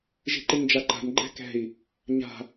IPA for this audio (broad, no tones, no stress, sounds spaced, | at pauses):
ʒ i̤ ǃ ɪ ɲ d͡ʒ a ǃ a̤ n ɡ͡ǃ ɛ̤ k ɛ̤ i̯ | ɲ a̤